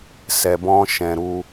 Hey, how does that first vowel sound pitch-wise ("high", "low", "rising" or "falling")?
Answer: low